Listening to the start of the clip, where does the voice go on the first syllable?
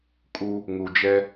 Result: high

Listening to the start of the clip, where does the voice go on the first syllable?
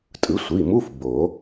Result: rising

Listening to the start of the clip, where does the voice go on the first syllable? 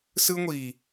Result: high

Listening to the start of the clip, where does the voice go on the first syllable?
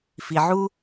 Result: low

